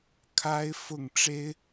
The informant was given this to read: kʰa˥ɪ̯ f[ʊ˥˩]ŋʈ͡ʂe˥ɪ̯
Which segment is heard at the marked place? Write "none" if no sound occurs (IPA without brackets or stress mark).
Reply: ʊ˥˩